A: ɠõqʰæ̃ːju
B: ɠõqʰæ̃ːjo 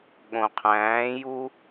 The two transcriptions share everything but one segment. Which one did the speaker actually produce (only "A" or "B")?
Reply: A